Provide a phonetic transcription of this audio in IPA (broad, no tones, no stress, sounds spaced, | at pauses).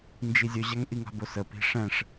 n d͡ʒ i zʲ ɵ ʑ a ŋ ʔ i ŋ a̤ b o s ə p i̤ ʂ ɛ̃ ʂ